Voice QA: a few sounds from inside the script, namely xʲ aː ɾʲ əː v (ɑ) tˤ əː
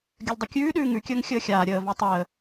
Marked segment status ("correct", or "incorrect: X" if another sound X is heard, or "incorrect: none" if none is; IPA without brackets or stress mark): correct